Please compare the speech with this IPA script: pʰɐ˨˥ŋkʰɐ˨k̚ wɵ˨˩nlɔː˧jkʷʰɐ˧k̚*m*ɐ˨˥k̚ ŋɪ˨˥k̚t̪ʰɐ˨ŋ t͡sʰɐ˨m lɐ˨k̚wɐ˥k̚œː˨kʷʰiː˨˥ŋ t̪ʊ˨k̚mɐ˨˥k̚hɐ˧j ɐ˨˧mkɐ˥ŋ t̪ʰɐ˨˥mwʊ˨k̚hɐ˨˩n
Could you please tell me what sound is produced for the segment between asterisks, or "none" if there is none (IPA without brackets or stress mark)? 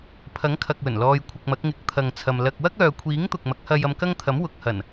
m